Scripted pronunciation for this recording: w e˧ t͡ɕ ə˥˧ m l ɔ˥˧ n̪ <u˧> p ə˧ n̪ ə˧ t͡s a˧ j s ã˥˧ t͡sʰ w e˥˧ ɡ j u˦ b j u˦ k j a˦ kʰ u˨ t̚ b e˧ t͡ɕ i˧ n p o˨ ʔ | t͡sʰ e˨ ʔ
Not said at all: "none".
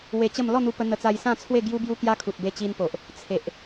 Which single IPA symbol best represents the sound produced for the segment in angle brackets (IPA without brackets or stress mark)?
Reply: u˧